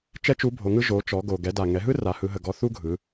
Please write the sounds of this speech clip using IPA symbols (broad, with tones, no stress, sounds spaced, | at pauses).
t͡ʃ ɛ˥ t͡ʃ u˧˥ bʱ o˩˧ ŋ ɯ˥ ʒ o˩˧ t͡ʃ ɔ˩˧ ɡ o˩ ɡ ɛ˩˧ d a˩ ŋ ɛ˩˧ ɦ ɯ˥ r a˩˧ h ɯ˩˧ ɦ ə˩ ɡ ɔ˧ θ u˥ ɡʱ ɯ˩˧